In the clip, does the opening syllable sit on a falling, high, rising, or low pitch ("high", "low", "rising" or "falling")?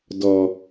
low